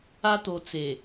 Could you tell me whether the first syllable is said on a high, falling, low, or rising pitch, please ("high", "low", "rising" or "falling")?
high